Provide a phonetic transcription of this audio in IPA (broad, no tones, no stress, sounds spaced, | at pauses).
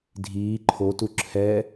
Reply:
dʱ iː ǃʰ o t u ǁʰ ɛ